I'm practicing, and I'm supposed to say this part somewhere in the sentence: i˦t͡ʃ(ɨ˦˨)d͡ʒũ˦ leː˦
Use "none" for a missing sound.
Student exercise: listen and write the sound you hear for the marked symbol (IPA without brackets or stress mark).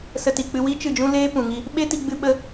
ɨ˦˨